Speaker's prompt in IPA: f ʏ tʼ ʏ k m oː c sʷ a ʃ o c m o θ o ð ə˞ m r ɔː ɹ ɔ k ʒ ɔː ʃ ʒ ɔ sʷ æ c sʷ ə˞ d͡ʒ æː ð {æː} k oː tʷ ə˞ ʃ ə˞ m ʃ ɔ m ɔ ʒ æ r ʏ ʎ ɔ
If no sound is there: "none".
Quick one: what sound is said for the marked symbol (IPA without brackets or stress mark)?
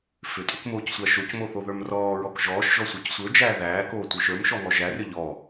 æː